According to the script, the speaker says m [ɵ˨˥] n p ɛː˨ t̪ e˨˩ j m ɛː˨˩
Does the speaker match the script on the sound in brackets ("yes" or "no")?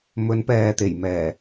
no